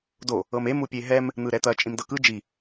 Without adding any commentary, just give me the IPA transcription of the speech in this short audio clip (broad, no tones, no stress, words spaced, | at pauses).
do | ɤmem upʲeɦɛm | n̪ɯɾɛt̪ɐ t͡ʃʼĩmdɤkɯ d͡ʒi